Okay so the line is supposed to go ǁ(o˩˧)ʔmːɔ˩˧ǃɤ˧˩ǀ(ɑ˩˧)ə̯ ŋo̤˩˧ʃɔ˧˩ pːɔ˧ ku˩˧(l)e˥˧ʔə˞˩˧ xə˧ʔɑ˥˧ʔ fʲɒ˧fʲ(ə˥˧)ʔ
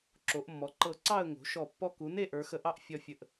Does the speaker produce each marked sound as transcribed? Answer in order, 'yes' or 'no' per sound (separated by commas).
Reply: yes, no, no, no